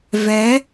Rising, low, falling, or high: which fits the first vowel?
rising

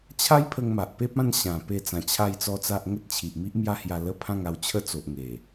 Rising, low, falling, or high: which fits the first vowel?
high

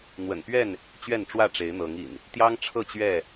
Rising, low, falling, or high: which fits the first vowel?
low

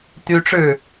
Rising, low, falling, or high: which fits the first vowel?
high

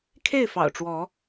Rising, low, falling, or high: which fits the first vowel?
falling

